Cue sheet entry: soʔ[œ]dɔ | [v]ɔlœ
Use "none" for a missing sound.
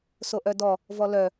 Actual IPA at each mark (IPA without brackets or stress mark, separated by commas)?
œ, v